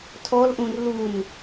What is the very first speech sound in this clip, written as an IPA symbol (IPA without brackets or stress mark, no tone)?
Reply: tʰ